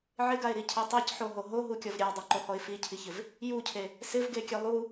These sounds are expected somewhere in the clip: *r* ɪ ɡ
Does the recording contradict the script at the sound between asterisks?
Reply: yes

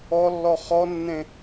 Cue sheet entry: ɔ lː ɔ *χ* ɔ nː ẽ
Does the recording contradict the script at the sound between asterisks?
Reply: no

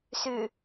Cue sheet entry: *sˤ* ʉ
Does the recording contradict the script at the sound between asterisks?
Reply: yes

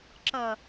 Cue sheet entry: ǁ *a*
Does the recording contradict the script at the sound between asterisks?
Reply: yes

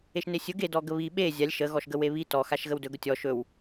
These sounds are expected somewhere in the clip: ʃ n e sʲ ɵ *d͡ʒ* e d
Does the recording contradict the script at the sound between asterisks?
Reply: yes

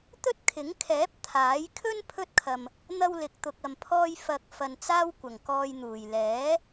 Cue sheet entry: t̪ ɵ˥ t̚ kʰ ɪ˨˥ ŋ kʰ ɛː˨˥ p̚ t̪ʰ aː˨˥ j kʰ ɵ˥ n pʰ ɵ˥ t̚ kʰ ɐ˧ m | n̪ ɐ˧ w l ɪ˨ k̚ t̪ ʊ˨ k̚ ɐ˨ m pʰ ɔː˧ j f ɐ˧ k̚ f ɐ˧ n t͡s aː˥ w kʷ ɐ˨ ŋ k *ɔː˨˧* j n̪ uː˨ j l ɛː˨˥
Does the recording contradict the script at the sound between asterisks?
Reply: yes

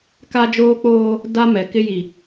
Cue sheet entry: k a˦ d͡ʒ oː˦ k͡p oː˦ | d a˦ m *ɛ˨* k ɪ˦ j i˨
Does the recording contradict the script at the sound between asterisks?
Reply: no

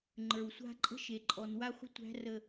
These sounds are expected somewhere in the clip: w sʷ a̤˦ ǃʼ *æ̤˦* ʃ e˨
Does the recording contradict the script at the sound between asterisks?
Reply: yes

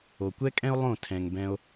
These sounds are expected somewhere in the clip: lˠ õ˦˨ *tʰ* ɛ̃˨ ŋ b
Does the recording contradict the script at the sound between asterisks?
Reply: no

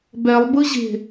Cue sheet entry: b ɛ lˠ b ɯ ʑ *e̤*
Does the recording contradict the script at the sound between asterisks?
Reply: no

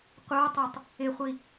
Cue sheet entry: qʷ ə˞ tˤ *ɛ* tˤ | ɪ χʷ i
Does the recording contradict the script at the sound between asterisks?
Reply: no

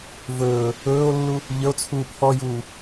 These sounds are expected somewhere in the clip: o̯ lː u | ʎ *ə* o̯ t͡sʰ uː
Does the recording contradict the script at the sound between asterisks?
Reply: no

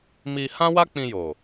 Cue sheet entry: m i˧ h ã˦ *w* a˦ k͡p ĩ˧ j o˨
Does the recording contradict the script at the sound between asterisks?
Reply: no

